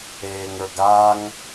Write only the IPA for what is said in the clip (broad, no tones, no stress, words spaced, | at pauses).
eːŋə˞ɡaŋ